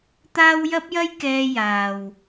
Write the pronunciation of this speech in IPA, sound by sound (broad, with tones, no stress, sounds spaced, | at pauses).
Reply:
t̪ aː˥ w j ɐ˥ p̚ j ɐ˥ j k ɛː˧ j aː˨ w